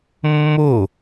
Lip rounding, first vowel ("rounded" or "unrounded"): rounded